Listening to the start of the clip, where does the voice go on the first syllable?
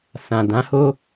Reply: low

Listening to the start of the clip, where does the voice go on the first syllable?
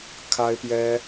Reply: high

